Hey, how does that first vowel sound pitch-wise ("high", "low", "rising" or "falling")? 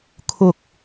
high